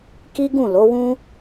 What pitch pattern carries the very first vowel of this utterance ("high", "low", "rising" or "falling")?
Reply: high